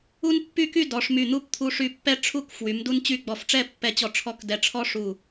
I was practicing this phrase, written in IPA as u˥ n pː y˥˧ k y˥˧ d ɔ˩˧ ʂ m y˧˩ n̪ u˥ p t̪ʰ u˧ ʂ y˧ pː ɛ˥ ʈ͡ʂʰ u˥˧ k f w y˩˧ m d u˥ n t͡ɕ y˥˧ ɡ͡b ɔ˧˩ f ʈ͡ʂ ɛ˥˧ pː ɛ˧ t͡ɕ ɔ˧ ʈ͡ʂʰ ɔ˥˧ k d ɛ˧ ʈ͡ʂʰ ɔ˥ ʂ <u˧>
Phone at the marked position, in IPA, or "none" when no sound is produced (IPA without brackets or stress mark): u˧˩